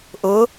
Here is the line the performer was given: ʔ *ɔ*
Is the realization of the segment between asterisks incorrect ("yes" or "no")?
yes